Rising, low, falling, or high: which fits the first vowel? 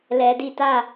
low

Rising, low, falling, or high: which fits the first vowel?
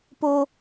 low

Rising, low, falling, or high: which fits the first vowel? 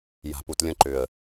low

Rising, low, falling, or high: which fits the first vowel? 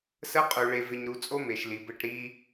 high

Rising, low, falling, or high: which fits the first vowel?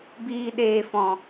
low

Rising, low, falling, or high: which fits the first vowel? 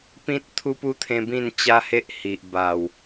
high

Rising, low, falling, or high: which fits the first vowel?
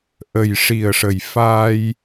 low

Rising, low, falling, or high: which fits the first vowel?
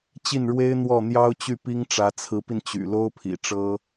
falling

